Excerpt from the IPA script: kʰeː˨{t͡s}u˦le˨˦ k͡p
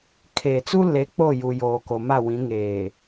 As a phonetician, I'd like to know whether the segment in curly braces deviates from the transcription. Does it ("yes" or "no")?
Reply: no